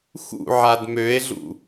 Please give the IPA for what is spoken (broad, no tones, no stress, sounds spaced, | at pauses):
x ṵ ʕ a d m ø e̯ ɮ ṵ